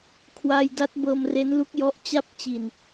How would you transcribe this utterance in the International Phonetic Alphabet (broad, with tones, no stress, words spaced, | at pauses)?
kʰwa˧jda˦˥t̚ bɤː˧mre˦˥nlu˦˥k̚jɔ˦˥ʔ t͡ɕa˥˩p̚t͡ɕi˧n